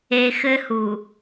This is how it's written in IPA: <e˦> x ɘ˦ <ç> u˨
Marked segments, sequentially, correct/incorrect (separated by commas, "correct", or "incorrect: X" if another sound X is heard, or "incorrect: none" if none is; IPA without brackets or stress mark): incorrect: e˨, incorrect: h